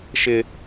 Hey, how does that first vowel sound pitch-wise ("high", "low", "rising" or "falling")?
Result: low